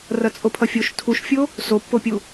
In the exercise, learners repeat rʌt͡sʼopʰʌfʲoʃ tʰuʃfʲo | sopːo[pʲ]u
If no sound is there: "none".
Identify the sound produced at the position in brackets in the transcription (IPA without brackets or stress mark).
pʲ